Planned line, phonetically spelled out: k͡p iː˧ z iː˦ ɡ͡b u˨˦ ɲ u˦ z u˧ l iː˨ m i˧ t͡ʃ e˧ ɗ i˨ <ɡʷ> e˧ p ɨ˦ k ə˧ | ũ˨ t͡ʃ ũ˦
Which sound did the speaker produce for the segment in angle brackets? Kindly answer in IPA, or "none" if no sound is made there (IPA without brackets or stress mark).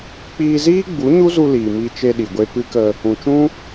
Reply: ɡʷ